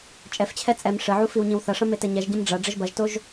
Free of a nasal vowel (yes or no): no